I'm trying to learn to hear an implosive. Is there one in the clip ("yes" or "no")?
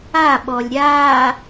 yes